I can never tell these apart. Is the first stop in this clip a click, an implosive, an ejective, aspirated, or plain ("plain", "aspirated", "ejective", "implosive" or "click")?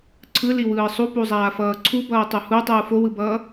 click